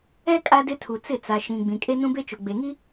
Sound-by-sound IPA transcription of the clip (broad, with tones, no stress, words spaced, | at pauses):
ɛ˦ kʼa˦dɪ˦tʰu˨ t͡sɪ˦˨t͡sa˨ ʃĩ˨ ɡ͡bĩ˨kʼe˦ nũ˦be˦t͡ʃʊ˨ ɡ͡be˨ŋi˦